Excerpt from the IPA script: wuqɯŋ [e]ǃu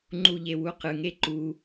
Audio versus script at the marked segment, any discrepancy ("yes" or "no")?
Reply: no